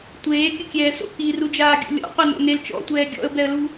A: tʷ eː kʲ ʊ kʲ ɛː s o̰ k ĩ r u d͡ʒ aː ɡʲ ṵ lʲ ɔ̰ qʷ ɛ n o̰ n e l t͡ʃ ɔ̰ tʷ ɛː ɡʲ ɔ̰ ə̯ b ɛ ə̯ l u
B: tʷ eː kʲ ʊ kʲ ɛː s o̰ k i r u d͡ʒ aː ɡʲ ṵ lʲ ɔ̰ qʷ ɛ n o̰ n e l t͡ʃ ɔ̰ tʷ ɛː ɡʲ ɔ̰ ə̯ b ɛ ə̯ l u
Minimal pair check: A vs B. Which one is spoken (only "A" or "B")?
B